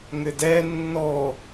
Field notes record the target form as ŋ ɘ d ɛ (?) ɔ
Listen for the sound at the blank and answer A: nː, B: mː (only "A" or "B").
A